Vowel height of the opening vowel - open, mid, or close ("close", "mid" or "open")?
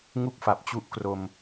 close